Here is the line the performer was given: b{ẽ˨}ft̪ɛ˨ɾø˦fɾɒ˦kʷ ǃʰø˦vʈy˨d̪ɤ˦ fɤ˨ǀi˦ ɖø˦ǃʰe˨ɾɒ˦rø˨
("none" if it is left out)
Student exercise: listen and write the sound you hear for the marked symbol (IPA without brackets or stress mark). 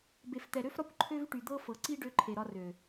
e˨